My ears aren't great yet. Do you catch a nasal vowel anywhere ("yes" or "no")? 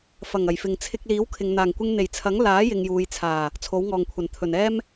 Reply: no